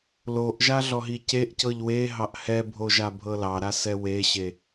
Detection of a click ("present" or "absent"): absent